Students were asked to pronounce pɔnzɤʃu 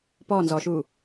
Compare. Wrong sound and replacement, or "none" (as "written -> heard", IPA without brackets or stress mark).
ɤ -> ɔ